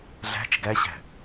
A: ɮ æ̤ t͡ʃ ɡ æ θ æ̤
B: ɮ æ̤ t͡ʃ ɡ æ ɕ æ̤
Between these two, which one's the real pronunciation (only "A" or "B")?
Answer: B